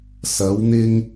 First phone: s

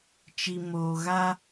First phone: t͡ʃ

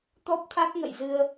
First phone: t̪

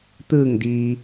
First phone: t̪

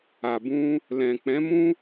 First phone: a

